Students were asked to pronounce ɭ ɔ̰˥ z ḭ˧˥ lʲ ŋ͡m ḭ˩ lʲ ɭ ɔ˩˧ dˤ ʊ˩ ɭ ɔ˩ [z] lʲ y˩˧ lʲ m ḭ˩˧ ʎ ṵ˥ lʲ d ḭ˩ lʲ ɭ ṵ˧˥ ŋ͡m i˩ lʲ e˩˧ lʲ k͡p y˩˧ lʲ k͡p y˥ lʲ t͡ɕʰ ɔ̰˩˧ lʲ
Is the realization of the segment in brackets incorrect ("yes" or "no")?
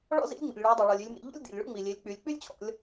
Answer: yes